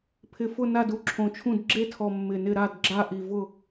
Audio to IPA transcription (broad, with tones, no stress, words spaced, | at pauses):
pʰɪ˨˩fʊ˦˨ na˦˨du˦˨ǁʰõ˨˩t͡ʃʰũ˦˨d ɡ͡ǁe˦˨tʰɔ˨˩ mːɪ˨˩nɪ˦˨ ɾa˦˨d ɡ͡ǁa˦˨ʔi˨˩vʊ˦˨